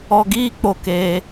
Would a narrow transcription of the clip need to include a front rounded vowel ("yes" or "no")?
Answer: no